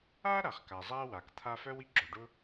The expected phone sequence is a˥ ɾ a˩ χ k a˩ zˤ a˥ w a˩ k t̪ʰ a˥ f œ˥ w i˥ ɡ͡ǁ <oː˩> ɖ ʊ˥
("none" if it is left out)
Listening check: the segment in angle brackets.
o˩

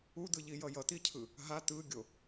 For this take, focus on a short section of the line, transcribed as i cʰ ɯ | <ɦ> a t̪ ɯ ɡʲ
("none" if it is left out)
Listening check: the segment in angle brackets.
ɦ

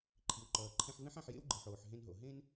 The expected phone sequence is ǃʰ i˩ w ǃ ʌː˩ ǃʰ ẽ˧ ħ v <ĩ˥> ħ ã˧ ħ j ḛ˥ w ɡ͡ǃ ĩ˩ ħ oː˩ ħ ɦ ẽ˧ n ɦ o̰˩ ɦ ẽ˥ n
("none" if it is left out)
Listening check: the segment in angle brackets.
ẽ˥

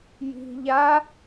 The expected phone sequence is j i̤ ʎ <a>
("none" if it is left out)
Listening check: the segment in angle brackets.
a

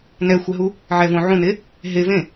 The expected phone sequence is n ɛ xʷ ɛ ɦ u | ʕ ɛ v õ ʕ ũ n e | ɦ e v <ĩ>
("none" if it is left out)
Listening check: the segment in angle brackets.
ẽ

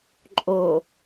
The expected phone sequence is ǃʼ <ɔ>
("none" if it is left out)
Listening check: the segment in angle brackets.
o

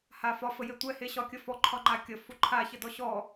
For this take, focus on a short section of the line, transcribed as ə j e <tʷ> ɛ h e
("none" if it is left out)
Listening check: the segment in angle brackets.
tʷ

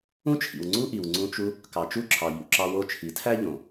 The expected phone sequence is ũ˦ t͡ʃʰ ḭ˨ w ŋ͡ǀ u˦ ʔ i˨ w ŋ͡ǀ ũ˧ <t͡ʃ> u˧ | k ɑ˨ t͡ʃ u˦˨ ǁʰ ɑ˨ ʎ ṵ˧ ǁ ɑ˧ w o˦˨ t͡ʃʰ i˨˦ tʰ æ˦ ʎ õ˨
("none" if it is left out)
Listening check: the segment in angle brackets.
t͡ʃ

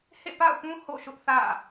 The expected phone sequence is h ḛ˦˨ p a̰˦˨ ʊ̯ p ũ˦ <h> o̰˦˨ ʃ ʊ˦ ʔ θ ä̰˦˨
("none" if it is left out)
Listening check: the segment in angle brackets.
h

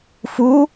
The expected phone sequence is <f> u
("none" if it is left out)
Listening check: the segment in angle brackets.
f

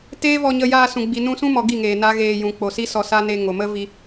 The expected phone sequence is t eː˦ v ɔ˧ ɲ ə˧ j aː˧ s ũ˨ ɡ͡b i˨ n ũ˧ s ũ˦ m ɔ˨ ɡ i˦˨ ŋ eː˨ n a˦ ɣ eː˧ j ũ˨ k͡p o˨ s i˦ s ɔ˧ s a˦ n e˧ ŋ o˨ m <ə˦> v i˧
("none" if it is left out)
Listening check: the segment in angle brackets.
ə˦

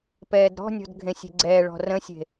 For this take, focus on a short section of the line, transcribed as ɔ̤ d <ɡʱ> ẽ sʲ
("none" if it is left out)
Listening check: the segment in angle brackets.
ɡʱ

